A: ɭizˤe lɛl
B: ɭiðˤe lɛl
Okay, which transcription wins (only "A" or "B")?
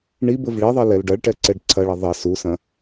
B